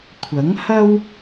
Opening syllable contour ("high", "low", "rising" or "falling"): rising